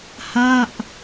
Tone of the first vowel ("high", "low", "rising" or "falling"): falling